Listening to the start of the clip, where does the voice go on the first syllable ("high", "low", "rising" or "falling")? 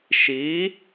rising